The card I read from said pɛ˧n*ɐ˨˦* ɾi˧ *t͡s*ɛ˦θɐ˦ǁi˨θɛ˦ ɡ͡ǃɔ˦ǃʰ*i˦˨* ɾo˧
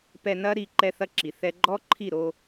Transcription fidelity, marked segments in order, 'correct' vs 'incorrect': incorrect, incorrect, correct

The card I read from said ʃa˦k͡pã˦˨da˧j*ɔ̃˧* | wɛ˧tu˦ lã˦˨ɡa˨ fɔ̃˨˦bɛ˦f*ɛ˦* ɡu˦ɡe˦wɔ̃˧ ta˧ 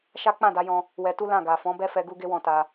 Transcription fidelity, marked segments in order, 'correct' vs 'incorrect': correct, incorrect

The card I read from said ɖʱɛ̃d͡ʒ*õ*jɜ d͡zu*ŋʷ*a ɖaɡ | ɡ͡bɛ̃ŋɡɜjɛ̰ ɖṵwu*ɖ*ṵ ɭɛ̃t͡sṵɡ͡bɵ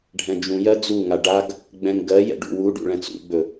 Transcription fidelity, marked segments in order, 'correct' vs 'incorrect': incorrect, incorrect, correct

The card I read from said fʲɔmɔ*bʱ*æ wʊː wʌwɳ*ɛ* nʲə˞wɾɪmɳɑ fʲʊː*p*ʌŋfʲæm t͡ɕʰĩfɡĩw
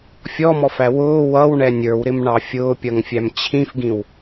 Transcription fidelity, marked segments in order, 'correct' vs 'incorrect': incorrect, correct, incorrect

